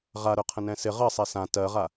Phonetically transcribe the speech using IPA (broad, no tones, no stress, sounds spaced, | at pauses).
ʁ a ɾ œ qʰ ə̃ n ɛ̃ s ɪ ʁ ɜ sˤ ɛ s ã t ɜ ʁ a